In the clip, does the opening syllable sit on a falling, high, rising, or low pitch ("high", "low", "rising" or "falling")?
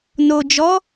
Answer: low